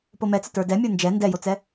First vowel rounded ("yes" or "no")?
yes